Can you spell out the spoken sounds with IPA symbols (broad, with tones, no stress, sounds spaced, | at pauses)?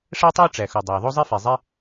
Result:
ʂ æ˥ tˤ o˥ ʈ͡ʂ æ˩ x u˩ dˤ æ˩ ðˤ o˥ zˤ i˥ f e˩ zˤ e˥